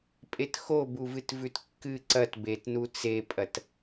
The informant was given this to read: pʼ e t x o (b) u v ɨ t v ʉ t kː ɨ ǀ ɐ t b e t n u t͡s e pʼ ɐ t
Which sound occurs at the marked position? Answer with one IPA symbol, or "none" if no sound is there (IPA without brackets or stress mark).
b